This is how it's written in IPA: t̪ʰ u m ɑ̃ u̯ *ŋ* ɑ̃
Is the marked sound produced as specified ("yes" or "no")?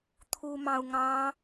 yes